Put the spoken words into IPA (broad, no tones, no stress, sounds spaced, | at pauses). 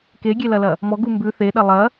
k e ɡʲ e l ɐ l ɐ | m ɔ ɡ u m b ʉ θ e ɗ ɐ lˠ ɐ